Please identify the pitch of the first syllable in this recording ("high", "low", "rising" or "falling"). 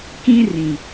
high